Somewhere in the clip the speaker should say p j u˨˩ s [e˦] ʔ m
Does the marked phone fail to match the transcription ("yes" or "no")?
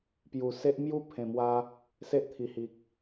no